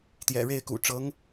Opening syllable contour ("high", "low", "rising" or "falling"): low